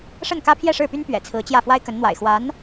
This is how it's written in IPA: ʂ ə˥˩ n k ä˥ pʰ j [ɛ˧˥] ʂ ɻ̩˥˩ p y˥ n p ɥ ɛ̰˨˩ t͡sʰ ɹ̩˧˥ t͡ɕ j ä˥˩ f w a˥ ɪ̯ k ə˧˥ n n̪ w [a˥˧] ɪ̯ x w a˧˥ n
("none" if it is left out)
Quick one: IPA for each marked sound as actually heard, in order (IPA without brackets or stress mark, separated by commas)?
ɛ˥˧, a̰˨˩